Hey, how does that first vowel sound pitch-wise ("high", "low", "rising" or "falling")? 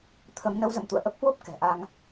rising